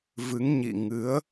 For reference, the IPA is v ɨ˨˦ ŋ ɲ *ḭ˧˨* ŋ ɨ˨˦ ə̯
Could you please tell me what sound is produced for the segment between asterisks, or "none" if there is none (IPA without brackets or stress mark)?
ḭ˧˨